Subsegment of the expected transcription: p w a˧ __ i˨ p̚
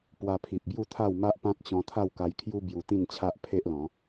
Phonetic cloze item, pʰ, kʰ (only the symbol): pʰ